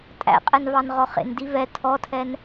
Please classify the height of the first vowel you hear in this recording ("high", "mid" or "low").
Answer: low